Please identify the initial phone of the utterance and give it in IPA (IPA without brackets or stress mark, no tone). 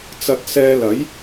t͡s